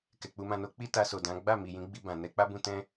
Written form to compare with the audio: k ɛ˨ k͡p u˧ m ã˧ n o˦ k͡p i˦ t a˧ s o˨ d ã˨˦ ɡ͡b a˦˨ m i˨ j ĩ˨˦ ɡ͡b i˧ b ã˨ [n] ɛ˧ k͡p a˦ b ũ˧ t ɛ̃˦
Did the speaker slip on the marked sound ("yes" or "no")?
no